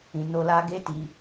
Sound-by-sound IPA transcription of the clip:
ĩ˨no˧la˧ ɡe˦ti˧

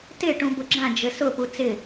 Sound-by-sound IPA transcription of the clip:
tɪ ʈũbʊɡ͡ǁã d͡ʒɘsʊ put͡sɪ

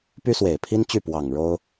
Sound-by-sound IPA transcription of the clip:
py˥swe˨˩ɪ̯pʰi˥nt͡ɕy˥˩ pwɑ˨˩ŋ ɻo˥ʊ̯

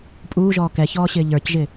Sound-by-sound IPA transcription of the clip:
pʼuːʒɔː kɛçɔːɕɪː ʎə˞cʒɪ

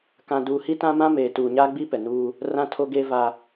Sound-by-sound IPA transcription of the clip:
kã˨ duː˨hi˦tã˦ mã˦meː˨ tuː˨ɲaː˦ɡ͡bi˦ pɛ˨nuː˦ | rã˦tʰo˦ɡeː˦ va˦

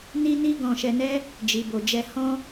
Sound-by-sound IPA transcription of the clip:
ni˦ni˦ɡɔ̃˧ ʃɛ˧nɛ˦ | d͡ʒi˧bo˧d͡ʒɛ˦ hɔ̃˦

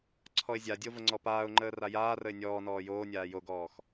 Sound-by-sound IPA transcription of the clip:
ǀʰɔɪ̯zʲadʲo vəŋ͡ǀɔpaːʊ̯ŋ͡ǃəː rajaːrəɪ̯ nʲɔː nɔːjoːnʲaː joɡɔːx

